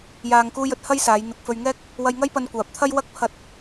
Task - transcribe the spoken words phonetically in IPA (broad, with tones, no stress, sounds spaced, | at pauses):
j aː˧ ŋ k uː˥ j ɵ˥ t̚ h ɐ˥ j s aː˨˧ j n̪ ɪ˨ k̚ f ɵ˧ ɥ ŋ ɛː˥ k̚ | w ɐ˧ j ŋ ɐ˥ j p ɐ˧ n kʷ aː˨ p̚ t̪ʰ ɐ˥ j w ɐ˥ k̚ pʰ ɐ˧ t̚